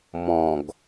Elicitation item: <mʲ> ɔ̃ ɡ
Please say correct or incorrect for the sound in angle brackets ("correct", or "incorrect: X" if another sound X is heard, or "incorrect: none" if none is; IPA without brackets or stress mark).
incorrect: m